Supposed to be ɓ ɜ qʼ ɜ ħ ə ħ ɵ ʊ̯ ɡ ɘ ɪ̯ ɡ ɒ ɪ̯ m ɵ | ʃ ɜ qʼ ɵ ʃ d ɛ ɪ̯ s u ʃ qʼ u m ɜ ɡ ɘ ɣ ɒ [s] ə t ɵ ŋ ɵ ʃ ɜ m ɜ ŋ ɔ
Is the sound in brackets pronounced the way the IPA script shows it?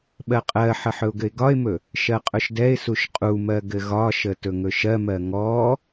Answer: no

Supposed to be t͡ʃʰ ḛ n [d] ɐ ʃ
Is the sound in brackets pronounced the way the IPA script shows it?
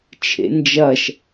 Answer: no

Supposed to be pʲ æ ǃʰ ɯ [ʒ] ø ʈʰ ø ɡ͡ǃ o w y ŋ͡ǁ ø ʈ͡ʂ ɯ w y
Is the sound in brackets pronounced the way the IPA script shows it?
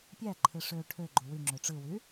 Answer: no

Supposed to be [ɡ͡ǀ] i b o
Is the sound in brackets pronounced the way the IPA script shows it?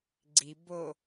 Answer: yes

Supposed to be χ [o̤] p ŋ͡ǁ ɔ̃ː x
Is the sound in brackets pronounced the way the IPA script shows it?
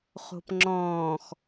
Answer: yes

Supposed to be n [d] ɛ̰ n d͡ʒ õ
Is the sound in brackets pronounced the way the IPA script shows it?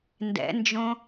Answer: yes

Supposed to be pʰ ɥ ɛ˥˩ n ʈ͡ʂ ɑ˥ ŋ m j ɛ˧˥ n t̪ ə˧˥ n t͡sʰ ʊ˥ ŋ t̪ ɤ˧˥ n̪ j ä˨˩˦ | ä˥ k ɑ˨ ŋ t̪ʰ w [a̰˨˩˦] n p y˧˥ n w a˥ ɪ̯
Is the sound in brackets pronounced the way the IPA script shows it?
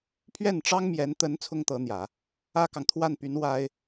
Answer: no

